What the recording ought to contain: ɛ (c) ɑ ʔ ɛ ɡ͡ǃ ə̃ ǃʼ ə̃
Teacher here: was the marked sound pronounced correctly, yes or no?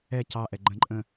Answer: yes